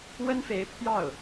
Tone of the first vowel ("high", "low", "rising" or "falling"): high